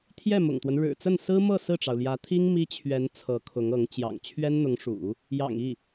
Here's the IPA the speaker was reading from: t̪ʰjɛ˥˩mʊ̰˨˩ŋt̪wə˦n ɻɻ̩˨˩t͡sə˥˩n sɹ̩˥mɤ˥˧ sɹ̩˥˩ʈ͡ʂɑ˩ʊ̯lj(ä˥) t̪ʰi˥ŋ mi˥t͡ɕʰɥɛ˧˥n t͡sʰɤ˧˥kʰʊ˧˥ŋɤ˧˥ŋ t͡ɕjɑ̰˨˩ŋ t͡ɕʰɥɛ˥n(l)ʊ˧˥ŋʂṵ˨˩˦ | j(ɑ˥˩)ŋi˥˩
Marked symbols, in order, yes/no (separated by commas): no, no, no